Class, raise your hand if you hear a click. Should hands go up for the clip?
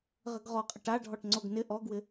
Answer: yes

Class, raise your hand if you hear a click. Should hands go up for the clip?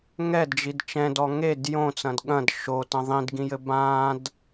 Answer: no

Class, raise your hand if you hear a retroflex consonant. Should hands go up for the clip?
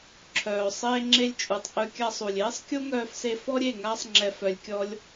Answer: no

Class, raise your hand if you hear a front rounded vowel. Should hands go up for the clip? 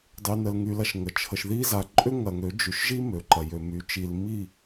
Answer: yes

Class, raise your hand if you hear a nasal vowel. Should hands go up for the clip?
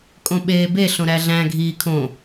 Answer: yes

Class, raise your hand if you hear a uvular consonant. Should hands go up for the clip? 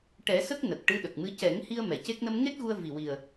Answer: no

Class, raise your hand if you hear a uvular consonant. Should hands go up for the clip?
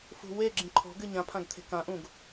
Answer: no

